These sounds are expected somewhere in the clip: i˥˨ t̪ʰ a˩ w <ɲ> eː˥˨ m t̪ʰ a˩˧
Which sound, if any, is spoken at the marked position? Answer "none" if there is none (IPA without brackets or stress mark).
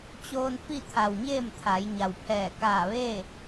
ɲ